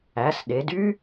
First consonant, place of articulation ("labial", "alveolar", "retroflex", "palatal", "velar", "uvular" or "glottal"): alveolar